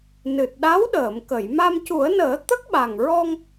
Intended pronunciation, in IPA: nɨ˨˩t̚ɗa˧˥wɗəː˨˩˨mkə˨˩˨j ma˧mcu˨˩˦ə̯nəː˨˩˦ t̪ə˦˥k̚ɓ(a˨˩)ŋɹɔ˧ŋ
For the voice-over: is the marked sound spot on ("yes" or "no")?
yes